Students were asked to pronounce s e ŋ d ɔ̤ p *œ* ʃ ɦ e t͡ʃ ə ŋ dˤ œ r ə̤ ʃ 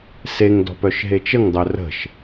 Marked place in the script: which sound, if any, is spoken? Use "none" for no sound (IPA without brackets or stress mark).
œ